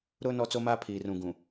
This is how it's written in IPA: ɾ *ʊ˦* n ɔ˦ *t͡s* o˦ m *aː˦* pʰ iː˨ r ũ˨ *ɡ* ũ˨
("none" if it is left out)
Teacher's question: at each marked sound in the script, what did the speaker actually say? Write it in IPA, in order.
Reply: ʊ˦, t͡s, aː˦, ɡ

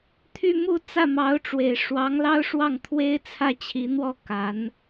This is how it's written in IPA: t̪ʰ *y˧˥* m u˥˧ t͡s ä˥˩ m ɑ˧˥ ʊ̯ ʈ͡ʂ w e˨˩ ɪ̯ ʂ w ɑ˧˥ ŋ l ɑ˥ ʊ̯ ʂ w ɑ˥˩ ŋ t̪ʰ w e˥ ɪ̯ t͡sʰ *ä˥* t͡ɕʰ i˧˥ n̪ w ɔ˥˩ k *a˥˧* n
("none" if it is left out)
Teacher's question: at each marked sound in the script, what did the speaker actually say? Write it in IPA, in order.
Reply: y˥˧, ä˥˩, a˧˥

